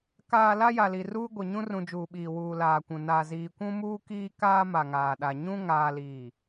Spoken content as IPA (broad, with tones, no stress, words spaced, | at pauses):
kaː˨ la˦ja˨li˨ruː˦ ɡʷe˨ɲũ˦rũ˨d͡ʒuː˨ ɓiː˨wuː˨ laː˨kʷũ˨ na˨ziː˨kʷũ˦ muː˦kiː˦kaː˦ ma˨ŋaː˨ɗa˨ ɲũ˦ ŋaː˦liː˦˨